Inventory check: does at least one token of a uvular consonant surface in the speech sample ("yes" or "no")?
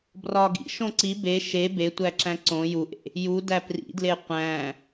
yes